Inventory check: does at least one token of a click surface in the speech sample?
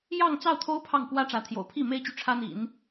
no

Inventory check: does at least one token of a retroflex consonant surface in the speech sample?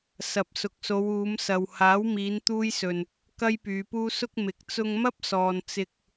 no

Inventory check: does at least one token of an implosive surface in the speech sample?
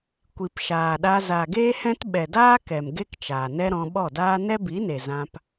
yes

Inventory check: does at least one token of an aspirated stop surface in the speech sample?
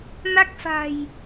no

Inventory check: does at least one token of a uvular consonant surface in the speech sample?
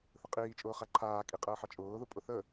yes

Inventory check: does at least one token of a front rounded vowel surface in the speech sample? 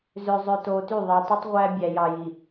yes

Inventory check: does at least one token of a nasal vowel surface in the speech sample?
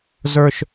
no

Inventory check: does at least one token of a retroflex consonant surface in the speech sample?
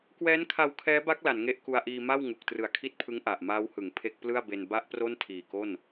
no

